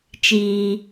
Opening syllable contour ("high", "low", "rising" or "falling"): low